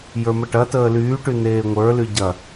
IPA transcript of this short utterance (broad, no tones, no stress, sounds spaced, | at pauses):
j ə˞ m ə ʈ ɐ t əː l yː ʈ y n eː ŋʷ ə˞ l y ɟ ɐ